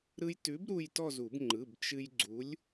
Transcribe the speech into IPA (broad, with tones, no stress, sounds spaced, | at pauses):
ɾ ɯ˧ j t ʉ˨˥ b ɾ u˥˧ j t ɔ˥˧ z u˨˩˦ b ŋ͡ǃ ɯ˩˧˩ b t͡ʃ ɨ˧ j ɡ͡ǀ u˨˥ lʲ